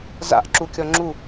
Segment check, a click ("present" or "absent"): present